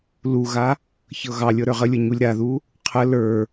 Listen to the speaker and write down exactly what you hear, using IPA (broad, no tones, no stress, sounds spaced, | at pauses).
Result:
l u ɣ a | ç ɤ ɣ ɑ lʲ ɤ ɾ ə˞ ʁ ə lʲ ɤ ɲ u lʲ ɾ a ð u | qʰ ə l ə˞